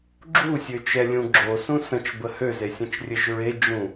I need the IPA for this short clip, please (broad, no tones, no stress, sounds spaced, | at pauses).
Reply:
ɡ͡ǁ u sʲ ø t͡ʃ ɛ lʲ ũ ɡ͡ǁ o s ũ s ə̃ t͡ʃ b ə h ø z e sʲ ə̃ t͡ʃ rʲ ɘ ʒ ɹ e d͡ʒ ũ